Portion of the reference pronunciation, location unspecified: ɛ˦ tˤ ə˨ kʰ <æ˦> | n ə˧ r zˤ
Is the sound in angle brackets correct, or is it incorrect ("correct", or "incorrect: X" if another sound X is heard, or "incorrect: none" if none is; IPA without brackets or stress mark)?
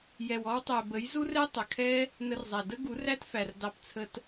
incorrect: ɛ˦